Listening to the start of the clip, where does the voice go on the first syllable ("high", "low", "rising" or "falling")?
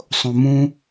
low